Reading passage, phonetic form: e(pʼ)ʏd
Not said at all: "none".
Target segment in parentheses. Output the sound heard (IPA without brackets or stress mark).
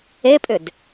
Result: pʼ